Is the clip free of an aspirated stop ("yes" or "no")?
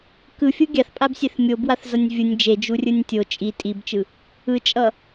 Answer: yes